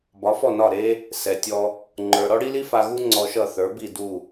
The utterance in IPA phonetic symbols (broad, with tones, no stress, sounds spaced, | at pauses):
b ɒ˩˥ f ɔ˥˩ n ɒ˥˩ ɾ e˥ | s ɛ˩ tʲ ɔ˧ | ŋ͡ǃ ə˞˩ ɾ ɔ˥ ɽ i˥ l i˥ f a˧ ɣ u˥ ŋ͡ǀ ɔ˧ ʃ ʌ˥˩ θ ə˞˩˥ b i˥˩ d u˥˩